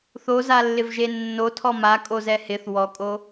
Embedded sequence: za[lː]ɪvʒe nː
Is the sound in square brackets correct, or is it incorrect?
correct